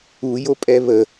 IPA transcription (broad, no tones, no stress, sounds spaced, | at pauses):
u j o pʼ ɛ β ə